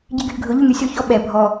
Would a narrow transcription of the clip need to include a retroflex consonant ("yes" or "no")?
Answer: no